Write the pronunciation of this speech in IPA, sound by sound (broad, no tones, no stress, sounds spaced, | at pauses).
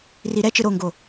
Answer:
r i ɾ ɛ t͡ʃ ɯ ɾ o ŋ ɡ o